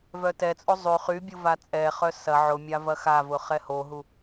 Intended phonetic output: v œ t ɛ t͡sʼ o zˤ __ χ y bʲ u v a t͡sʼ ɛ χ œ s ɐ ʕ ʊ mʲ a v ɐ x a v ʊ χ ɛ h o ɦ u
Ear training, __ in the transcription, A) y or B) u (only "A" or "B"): A